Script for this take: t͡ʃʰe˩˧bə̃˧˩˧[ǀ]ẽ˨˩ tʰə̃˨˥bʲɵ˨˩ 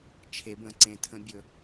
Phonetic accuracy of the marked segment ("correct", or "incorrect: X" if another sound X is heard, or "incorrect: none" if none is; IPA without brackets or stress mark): correct